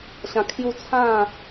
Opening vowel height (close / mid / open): open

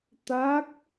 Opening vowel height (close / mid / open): open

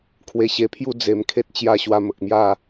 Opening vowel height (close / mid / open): mid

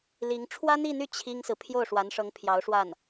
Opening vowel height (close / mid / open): close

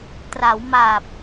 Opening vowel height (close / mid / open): open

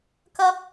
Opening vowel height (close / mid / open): open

